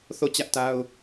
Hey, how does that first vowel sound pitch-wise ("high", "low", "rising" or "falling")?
falling